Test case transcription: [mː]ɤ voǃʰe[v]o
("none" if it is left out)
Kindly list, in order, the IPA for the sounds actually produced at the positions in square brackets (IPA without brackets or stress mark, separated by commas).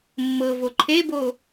mː, b